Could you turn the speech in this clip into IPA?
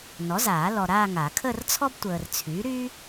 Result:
n ɔ˩˥ z aː˨˩˦ l ɔ˨ ɾ aː˥˧ ŋ a˨˩˦ kʰ əː˥˧ r t͡sʰ ɔ˥ b tʷ əː˨ r t͡sʰ yː˩˥ ɾ y˥

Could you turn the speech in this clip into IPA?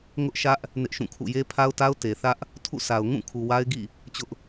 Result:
ŋ ʊ˦ ʔ ʃ ä˦ ʔ | n ɪ˦ ʔ ʃ ũ˦˨ kʰ ṵ˦˨ j e˦ pʰ a˦ ʊ̯ t a˦ ʊ̯ t e˨ θ ä˦ ʔ | tʰ ṵ˦˨ s a˨ ʊ̯ ŋ ũ˦˨ kʰ u˨ w a˦ ɪ̯ ɡ ḭ˦˨ | t͡ɕ ʊ˦ ʔ

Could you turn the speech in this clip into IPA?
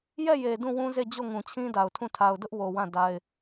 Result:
j ɛ˦˨ j e˨ d ũ˦˨ w ũ˦ z e˦˨ d͡ʑ o˦˨ ŋ ũ˨ t͡ɕʰ ĩ˦ d a˨ ʊ̯ tʰ ũ˦˨ tʰ a˨ ʊ̯ d ʊ˦ ʔ w o˨ w ã˦˨ d a˦ ɪ̯

